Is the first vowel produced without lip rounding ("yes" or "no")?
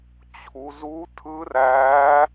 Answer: no